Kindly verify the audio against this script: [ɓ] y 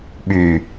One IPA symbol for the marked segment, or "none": ɓ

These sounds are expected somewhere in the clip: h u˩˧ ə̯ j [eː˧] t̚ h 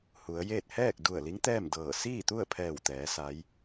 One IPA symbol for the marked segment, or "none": eː˥˨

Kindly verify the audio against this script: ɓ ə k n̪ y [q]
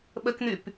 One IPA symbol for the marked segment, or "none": p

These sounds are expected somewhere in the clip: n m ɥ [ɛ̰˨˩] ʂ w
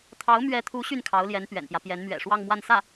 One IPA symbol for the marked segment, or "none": ɛ̰˨˩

